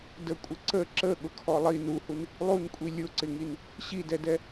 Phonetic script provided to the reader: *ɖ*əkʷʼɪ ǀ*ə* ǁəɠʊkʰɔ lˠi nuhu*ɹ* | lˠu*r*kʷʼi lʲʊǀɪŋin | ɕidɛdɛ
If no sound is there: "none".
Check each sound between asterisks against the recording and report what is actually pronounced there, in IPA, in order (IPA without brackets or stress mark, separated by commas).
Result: d, ə, n, n